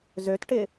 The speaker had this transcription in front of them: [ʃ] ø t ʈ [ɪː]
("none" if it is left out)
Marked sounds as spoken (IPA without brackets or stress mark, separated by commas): z, ɪ